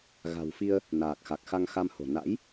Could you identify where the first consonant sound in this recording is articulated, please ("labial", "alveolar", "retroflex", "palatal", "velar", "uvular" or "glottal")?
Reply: velar